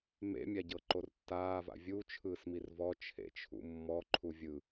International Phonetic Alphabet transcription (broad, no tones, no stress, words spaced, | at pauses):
mḛmʲaɟɤ ǃortːaːva̰ vʲu t͡ʃʰɯːsmirvɔ t͡ʃʰḛt͡ʃʰṵmːɔ ǃʰuvʲɯ